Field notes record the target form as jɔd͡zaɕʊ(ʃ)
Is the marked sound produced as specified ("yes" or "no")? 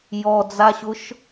yes